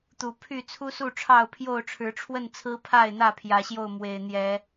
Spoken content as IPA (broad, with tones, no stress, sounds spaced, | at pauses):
t̪ u˨˩ pʰ y˥˨ t͡sʰ u˦ s u˥˨ ʈ͡ʂʰ ɑ˥˨ ʊ̯ pʰ j o˥˨ ʊ̯ ʈ͡ʂʰ ɻ̩˨˦ ʈ͡ʂʰ w ə˥˨ n t͡sʰ ɹ̩˦ pʰ a˥˨ ɪ̯ n̪ ä˥˨ pʰ j ä˨˦ ɕ j o˥˨ ʊ̯ m w e˨˩ ɪ̯ n̪ j ɛ˨˦